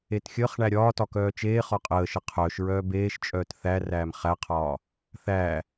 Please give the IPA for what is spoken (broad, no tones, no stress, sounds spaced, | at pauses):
e t xʲ əː χ ɳ æ ɾʲ ɒː t ɒ k œː t͡ʃ eː χ ɒ qʼ əː ʃ ə qʰ œː ʃ ɹ œː b eː ʃ t͡ʃʼ œː t θ æ r æː m χ æ qʰ ɒː | θ æː